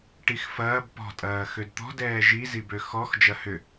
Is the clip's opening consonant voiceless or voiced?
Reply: voiceless